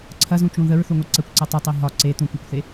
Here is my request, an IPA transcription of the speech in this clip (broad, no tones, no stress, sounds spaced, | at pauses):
ǀʰ ɐ z ũ t͡ʃ ũ ð ə ɹ θ u ŋʷ i ǀ ə kʷ ǀ ɐ tˤ ʊ tˤ i ɦ ɒ ǀ e t̪ ũ kʷ ɛ kʷ θ e